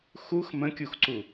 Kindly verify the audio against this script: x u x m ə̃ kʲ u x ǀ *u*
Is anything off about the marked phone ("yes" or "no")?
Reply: no